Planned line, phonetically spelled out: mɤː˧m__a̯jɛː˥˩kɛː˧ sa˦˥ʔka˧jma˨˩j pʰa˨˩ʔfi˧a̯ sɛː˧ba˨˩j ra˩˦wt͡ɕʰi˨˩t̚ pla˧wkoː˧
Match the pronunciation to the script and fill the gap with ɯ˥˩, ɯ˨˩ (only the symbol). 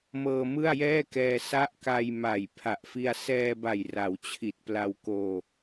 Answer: ɯ˥˩